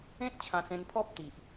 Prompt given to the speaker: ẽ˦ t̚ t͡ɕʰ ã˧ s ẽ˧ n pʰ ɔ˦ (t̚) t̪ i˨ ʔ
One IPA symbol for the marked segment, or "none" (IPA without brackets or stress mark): p̚